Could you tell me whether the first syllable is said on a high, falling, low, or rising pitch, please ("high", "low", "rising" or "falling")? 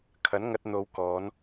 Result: rising